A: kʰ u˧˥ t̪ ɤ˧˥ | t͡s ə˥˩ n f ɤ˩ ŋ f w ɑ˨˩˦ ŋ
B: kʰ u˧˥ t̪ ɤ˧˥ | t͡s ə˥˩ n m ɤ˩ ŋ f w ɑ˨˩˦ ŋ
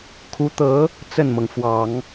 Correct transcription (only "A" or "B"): B